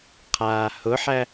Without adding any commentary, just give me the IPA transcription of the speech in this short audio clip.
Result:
qʰ aː h ʊ ħ æ

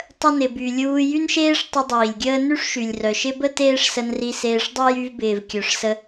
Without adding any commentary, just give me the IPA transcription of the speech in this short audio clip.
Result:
tˤ ə˧ n ɪ˨ b y˨ lʲ uː˧ j y˦ n ʃ eː˦ ʂ tˤ ʊ˧ dˤ iː˨ lʲ ɡʲ əː˦ n y˦ ʂ ʃ y˨ lʲ r œ˨ ʃ ɪ˦ b ə˦ t eː˦ ʂ s ə˧ n r i˧ s eː˧ ʂ dˤ y˦ j y˧ v b ɪː˨ v kʲ œ˨ ʂ s ə˧

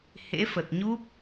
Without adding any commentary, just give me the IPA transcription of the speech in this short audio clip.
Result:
h ḛ˧˥ f ə˨˩ t̚ ɲ u˦˥ p̚

